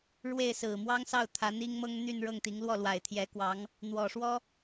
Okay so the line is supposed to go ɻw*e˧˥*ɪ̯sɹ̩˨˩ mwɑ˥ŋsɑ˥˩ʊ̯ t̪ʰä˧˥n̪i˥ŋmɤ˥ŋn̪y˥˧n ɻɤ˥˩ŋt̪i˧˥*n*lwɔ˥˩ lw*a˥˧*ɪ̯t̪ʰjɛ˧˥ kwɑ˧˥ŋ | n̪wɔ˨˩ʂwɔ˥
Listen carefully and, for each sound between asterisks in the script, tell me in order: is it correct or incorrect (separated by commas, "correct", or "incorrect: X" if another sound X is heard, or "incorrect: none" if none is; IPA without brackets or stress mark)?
incorrect: e˥˩, incorrect: ŋ, incorrect: a˨˩